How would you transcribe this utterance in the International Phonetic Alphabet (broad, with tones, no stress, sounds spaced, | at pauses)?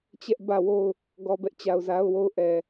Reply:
t͡ɕ ɛ˦ ʔ b ä˦˨ w o˦˨ ʊ̯ | ɡ ɔ˨ b ɛ˦ ʔ t͡ɕ a˨ ʊ̯ z a˦ ʊ̯ w o˦˨ ʊ̯ ʔ ɛ˨